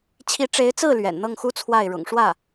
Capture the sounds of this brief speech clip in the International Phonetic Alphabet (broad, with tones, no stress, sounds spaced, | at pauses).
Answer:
t͡ɕʰ i˧˥ ʈ͡ʂ e˧˥ ɪ̯ t͡s ɹ̩˥˩ l ɥ ɛ̰˨˩ n n̪ ɤ˥˩ ŋ x u˥ t͡sʰ w a˥˩ ɪ̯ ɻ ʊ̰˨˩ ŋ ʂ w ä˥˩